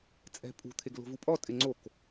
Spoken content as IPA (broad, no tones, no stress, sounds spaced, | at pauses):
t͡sʼ ɛ̤ pʼ ṳ t̪ʰ e ɡ l o̤ v u pʼ ɔ tʼ ɪ ŋ͡ǀ o k